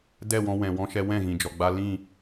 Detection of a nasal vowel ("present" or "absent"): present